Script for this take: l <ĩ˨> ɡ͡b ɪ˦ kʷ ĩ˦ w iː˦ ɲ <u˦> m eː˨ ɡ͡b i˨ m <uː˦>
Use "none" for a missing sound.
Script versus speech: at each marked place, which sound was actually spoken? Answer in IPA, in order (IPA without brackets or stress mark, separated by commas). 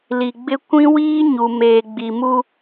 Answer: i˨, u˨, u˦